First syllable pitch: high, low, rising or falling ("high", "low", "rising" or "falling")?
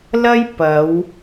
high